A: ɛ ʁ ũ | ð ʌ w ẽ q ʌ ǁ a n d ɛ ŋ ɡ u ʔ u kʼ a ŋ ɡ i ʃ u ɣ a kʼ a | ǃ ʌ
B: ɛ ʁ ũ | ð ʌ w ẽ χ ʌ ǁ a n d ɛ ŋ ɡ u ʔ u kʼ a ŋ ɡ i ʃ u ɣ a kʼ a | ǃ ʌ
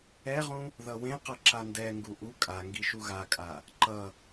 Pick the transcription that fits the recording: A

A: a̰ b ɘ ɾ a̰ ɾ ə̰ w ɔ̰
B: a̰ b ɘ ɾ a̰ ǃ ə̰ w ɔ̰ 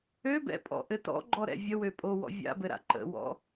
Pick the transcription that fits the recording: B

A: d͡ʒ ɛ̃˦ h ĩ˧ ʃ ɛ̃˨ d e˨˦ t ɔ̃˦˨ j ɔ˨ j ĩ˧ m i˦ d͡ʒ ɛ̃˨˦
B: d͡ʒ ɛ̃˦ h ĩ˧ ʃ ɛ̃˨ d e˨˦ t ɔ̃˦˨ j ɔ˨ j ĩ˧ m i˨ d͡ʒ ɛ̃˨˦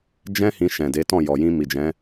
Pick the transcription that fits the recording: B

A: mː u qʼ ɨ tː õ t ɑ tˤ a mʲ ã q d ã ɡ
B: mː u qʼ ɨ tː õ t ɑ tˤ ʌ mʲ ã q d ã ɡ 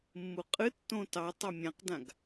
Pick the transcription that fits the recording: A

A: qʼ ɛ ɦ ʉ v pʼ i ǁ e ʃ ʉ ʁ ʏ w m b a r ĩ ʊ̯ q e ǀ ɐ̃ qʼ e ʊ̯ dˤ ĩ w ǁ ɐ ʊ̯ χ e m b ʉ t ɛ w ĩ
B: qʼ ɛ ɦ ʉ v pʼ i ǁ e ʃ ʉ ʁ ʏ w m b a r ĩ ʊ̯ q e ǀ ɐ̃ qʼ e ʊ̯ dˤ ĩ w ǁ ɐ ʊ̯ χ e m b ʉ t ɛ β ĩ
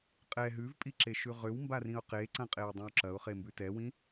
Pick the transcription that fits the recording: A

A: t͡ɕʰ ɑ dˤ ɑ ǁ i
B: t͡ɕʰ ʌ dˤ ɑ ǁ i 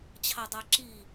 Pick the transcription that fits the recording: A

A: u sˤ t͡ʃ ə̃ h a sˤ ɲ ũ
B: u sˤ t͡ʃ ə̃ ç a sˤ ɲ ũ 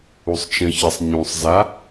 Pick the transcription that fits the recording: B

